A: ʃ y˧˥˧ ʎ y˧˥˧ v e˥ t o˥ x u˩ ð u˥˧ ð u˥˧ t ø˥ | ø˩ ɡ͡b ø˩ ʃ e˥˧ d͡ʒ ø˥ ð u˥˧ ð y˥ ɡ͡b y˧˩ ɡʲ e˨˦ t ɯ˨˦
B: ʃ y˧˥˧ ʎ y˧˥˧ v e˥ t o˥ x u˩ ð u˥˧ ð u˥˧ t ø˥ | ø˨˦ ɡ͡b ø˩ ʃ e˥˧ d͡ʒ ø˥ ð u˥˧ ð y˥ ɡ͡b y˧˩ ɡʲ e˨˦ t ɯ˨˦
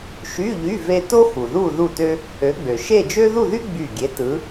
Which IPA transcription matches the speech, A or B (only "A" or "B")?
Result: B